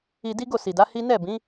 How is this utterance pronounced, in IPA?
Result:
i˧ d i˦ ɡ o˦˨ s i˨ d a˨˦ h i˦ n ɛ˦˨ b ĩ˨˦

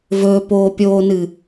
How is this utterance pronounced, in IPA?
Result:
v ɵː p oː pʲ oː n ɨ

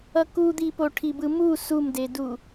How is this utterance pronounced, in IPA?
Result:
ʌ k u d̪ i p o ʈʰ i b ɯ m u s u m d e d u

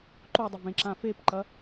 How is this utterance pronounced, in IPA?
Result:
ǃ o dˤ ɪ v ẽ ǁ ã f e p ǃ ɐ

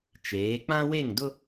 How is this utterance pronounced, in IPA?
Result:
t͡ʃ eː˨˦ k͡p ã˦ w e˦˨ ŋ d ʊ˦

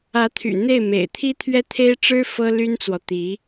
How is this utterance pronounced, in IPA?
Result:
ä˧˥ t̪ʰ y̰˨˩ n̪ e˥˩ ɪ̯ m ḛ˨˩ ɪ̯ t̪ʰ i˥ t̪ʰ ɥ ɛ˥ t̪ʰ e˥ ɪ̯ ʈ͡ʂ ɻ̩˥ f ɤ˥ l y˥ n t͡s w ɔ˨ t̪ i˧˥

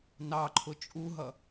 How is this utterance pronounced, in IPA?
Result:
n ɑ ǃʰ ʊ t͡ʃʼ u ɦ ʌ

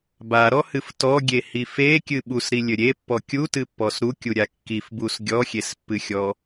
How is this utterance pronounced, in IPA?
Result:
b a ɾ ɔ h ɨ f t ɔ ɡʲ e h i f e kʲ ɨ ɓ u s ɾ i lʲ ɘ ɾʲ e pː ɔ kʲ u t ɨ pː ɔ s ɾ u kʲ u ɾʲ a kː i f b u s ɡʲ ɔ xʲ e s pː ɨ xʲ ɔ

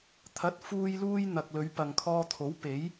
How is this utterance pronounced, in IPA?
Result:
t̪ʰ ɐ˨˥ t̚ f uː˧ j l uː˥ j n̪ ɐ˨ k̚ l ɵ˨˧ ɥ p ɐ˨ ŋ kʰ ɔː˧ t̪ʰ o˨˥ w p e˨˥ j

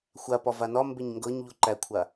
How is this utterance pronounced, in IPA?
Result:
xʷ a p ɒ v a n ɒ m b e ɲ ŋ ɡ ɤ ɲ ʎ u ǃ æ kʷʰ a

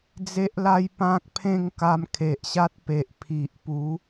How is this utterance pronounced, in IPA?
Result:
d͡z e˦ ʔ l a˦ j p ã˦ k̚ pʰ ẽ˥˧ ŋ k a˧ m kʰ e˨ ʔ ɕ a˦ t̚ p e˨ ʔ pʰ i˨ ʔ p u˨˦

